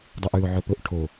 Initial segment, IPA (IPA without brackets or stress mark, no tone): dˤ